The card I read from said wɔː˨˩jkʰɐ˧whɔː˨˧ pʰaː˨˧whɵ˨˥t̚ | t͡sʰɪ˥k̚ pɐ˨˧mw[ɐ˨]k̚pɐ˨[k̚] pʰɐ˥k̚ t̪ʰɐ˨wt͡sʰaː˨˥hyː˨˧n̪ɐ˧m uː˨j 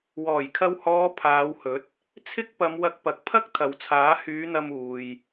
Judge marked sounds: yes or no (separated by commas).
no, yes